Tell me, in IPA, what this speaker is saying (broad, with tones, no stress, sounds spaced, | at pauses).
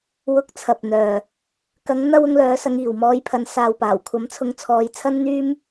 w ʊ˨˥ k̚ t͡sʰ ɐ˨ p̚ n̪ œː˨ | k ɐ˨˧ ŋ n̪ ɐ˧ w ʊ˧ ŋ l œː˨˧ s ɐ˨˧ ŋ iː˨ w m ɔː˧ j pʰ ɐ˨˧ n s aː˨ w p aː˨˩ w kʷʰ ɐ˨˥ m t͡sʰ ʊ˨˧ ŋ t͡sʰ ɔː˨˧ j t͡sʰ ɐ˥ n n̪ yː˥ m